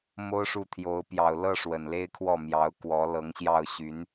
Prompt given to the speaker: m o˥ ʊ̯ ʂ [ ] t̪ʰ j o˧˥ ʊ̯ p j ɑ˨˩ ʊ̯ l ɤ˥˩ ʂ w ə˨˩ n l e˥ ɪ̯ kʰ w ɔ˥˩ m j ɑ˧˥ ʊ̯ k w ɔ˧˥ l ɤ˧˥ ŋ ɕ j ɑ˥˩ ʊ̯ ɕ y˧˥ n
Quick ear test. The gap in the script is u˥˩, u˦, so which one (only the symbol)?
u˥˩